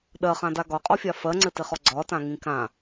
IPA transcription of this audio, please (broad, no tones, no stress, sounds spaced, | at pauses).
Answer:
ɗ ɜ χ ã d a ɡ ɒ qʼ ɔ fʲ a f ɜ ŋ͡ǀ ɘ t ɪ χ ɔ ɡ͡ǀ ɒ t ã ŋ ĩ k ã